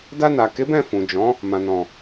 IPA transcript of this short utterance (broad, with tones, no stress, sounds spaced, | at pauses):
d a˧ n a˨ k e˨˦ b ɛ̃˦˨ f ũ˨ d͡ʒ ɔ̃˨˦ | m ã˨ n ɔ̃˨